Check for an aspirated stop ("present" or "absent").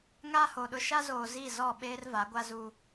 absent